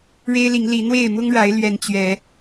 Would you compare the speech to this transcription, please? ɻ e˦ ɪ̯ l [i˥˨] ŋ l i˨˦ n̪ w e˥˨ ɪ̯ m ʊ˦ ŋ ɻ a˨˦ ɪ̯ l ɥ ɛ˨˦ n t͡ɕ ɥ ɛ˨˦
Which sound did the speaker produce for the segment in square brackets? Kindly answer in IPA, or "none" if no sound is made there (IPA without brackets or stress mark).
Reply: i˨˦